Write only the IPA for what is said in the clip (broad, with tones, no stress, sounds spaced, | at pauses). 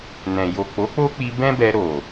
n ɛ̃˨ j o˨ k͡p o˨˦ k͡p o˦ k͡p i˧ b ɛ̃˦ b ɛ˧ ɾ o˨